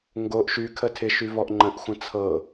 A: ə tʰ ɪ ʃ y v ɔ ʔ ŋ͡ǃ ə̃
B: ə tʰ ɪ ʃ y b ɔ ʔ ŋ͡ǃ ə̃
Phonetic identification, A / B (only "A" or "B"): A